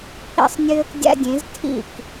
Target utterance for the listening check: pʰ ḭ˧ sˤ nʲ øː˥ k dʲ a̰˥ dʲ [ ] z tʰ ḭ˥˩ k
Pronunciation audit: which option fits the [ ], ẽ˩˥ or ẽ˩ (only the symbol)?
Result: ẽ˩˥